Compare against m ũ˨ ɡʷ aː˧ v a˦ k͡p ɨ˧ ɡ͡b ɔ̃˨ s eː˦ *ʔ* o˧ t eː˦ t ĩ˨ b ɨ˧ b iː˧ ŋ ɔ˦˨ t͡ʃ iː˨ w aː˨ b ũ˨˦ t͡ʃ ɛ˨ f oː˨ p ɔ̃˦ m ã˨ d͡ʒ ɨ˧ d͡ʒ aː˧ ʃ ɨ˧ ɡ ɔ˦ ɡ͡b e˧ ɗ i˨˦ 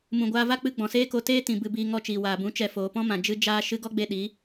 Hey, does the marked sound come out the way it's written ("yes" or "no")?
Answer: no